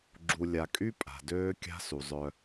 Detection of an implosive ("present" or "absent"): absent